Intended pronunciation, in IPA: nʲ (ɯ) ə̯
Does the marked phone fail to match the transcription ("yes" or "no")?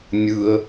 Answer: no